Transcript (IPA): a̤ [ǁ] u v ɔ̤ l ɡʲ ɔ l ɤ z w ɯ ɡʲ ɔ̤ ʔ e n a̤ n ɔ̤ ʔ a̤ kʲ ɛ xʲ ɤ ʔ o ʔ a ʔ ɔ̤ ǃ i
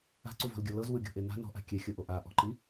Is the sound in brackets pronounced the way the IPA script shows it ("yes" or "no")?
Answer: no